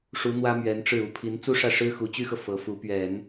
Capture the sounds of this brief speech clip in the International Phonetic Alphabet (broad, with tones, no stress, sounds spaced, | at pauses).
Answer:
ʂ u˧˥ n̪ w ä˥ m ɥ ɛ˧˥ n ʈ͡ʂ ɻ̩˥˩ u˧˥ pʰ i˧˥ n t͡s u˥ ʂ ä˥˩ ʂ ɻ̩˥ x u˧˥ t͡ɕ y˥ x ɤ˨ f ɤ˧˥ f u˧˥ p ɥ ɛ˨˩˦ n